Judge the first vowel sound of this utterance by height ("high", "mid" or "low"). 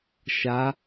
low